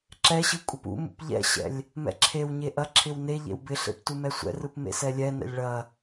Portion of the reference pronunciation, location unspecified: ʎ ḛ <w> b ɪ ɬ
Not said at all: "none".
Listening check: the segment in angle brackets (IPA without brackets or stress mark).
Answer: w